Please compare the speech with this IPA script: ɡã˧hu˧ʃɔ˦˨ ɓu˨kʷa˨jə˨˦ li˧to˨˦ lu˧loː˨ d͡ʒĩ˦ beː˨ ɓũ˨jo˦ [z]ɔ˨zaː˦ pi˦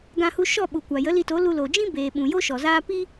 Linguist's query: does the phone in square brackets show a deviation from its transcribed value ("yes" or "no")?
yes